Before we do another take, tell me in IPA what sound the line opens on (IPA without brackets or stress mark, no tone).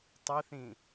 tˤ